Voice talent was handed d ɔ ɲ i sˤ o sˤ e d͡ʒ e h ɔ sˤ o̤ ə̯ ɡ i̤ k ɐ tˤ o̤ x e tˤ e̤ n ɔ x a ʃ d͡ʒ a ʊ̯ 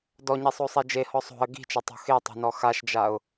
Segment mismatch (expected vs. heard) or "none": k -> t͡ʃ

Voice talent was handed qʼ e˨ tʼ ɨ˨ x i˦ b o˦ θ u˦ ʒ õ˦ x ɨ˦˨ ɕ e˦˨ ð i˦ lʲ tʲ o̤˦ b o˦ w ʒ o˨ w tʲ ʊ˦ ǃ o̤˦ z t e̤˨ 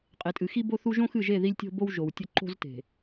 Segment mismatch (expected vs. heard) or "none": ɕ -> ʒ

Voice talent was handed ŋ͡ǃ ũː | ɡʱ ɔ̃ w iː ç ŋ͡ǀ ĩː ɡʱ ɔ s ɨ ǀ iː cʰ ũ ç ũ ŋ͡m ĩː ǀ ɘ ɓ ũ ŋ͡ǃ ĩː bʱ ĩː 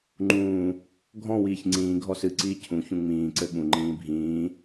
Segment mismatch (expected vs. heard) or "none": none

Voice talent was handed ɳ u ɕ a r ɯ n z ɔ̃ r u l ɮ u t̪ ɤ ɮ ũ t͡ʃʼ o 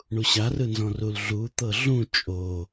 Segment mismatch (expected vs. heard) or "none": none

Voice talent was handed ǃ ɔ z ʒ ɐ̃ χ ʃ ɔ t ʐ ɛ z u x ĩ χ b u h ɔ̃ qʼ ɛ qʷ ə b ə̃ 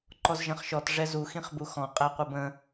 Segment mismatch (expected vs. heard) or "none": h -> x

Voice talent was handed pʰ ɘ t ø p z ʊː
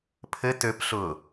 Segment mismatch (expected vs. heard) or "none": z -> ɬ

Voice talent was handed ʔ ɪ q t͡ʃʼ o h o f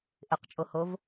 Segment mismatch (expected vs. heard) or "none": f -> v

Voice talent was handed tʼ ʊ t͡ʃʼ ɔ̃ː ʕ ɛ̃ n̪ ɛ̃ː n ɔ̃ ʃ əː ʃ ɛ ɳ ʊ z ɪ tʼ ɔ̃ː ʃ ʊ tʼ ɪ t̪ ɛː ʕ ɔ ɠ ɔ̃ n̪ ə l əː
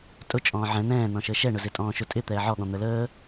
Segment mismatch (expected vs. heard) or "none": none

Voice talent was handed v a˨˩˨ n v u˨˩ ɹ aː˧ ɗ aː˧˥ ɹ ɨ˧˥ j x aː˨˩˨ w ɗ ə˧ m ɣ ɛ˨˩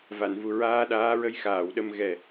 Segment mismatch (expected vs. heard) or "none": ɨ˧˥ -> ə˧˥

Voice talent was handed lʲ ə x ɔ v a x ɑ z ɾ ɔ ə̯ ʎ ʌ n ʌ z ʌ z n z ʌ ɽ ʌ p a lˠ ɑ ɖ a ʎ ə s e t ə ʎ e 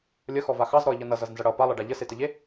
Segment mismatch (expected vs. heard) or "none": none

